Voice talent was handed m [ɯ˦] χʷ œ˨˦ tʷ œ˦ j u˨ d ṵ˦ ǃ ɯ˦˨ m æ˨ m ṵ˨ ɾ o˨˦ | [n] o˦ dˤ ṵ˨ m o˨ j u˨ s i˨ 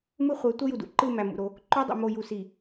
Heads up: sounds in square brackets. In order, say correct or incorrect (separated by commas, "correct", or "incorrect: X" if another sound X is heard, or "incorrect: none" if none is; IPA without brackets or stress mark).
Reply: correct, incorrect: ǃ